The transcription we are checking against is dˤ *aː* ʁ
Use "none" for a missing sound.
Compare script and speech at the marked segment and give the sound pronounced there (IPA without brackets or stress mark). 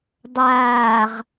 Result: aː